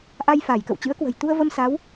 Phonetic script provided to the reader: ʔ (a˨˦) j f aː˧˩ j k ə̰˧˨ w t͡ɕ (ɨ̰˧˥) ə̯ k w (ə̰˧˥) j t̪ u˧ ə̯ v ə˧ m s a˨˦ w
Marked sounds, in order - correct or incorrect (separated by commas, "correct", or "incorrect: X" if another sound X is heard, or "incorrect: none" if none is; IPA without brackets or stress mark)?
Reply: incorrect: a˧, correct, incorrect: ə̤˨˩